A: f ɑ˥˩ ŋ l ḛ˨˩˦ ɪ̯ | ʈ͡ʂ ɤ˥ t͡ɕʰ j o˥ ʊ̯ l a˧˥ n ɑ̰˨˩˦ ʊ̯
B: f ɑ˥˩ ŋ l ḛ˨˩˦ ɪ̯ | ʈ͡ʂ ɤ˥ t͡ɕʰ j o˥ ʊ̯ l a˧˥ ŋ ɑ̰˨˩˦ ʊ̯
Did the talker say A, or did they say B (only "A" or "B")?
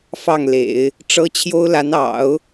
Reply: A